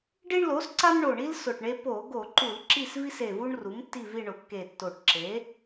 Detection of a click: present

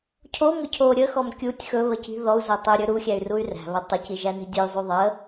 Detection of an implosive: absent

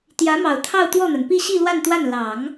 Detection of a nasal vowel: absent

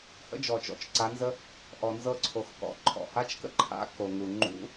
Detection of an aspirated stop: present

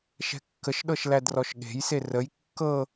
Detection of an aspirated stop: absent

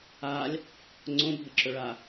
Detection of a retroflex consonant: present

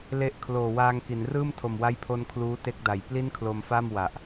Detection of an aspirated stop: present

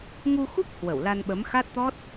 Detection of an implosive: present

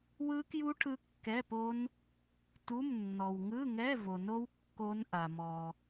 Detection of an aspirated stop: present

